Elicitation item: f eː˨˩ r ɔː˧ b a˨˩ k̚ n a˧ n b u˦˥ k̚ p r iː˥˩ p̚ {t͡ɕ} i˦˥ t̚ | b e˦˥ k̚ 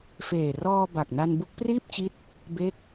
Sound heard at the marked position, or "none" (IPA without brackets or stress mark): t͡ɕ